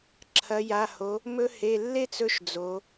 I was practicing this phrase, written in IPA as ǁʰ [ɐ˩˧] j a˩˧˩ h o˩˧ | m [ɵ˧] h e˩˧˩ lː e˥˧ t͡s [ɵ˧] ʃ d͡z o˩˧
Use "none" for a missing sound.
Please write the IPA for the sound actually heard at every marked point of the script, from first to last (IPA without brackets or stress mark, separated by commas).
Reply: ɐ˩˧, ɵ˧, ɵ˧